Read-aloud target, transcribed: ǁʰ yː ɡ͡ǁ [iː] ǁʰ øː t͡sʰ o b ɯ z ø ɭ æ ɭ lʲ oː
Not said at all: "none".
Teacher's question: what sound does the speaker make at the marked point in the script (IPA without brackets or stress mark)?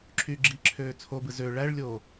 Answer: i